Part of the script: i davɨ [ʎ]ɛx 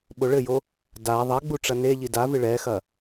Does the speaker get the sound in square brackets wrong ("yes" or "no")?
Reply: yes